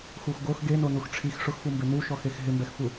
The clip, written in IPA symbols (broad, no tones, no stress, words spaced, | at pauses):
xuxɡox ɡenonux ʈ͡ʂʰix ʂʊxfumbe nuʃɔxex ɦɪmbɛxfu